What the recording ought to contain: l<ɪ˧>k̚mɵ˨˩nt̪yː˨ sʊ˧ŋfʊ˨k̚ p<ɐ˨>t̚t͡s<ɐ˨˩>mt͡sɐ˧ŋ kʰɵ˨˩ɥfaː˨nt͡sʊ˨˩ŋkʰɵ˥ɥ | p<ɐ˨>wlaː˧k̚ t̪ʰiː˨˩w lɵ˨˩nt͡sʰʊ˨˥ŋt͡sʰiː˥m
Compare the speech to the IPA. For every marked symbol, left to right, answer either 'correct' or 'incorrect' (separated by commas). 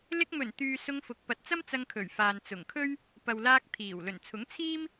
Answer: correct, correct, incorrect, correct